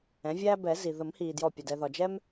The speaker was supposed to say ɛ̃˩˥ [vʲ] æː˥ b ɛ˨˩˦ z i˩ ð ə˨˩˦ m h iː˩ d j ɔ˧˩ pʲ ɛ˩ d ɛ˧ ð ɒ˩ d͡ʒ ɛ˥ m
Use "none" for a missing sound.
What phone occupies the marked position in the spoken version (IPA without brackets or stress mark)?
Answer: vʲ